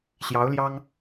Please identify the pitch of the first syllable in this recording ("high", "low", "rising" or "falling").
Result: rising